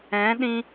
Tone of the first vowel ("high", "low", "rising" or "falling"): rising